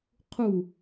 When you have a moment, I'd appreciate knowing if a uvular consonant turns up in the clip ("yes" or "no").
yes